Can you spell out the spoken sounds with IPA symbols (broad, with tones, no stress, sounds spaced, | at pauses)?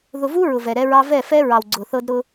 ð ʊ˨ v u˦ ɹ ʊ˨ v ɛ˨ ɾ ɛ˦ ɹ ɑ˦ v ɛ˦˨ f ɛ˦ ɹ ɑ˨ w ɡ͡ǀ ʊ˨ θ ɤ˦ d ɾ ʊ˦